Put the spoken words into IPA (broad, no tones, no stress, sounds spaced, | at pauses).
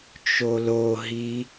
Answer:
t͡ʃ o l o ɦ i